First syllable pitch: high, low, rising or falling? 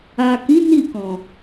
low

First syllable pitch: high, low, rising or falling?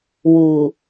low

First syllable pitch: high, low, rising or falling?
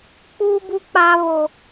high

